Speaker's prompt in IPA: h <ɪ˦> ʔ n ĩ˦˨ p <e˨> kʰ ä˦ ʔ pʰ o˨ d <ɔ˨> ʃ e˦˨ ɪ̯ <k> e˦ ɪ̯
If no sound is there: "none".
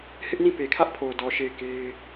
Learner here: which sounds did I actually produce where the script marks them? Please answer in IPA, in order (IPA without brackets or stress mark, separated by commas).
ɪ˦, e˨, ɔ˨, k